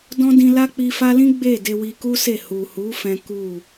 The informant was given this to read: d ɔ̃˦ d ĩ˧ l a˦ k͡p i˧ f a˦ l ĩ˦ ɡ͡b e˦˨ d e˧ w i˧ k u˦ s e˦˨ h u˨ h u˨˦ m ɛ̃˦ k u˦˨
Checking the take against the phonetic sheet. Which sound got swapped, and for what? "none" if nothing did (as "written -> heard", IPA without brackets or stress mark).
m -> f